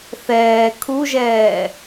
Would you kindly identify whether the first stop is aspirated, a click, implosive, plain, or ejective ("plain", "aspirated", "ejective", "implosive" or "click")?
aspirated